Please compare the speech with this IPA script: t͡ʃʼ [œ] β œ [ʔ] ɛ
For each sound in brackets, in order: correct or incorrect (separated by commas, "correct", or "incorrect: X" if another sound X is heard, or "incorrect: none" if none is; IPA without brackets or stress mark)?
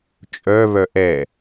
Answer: correct, correct